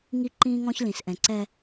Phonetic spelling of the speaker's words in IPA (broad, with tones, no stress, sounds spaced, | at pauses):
ŋ i˦ ǃ ĩː˦ ŋ ɔ̃˦ ç l ĩ˨ s ʔ ɛ̃˨ ǀ ɛ˦